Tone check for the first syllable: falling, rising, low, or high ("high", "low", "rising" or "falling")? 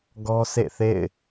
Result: high